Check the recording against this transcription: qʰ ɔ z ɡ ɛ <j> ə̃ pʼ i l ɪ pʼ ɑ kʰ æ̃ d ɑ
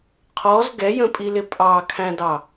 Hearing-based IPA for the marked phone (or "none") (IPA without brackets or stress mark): j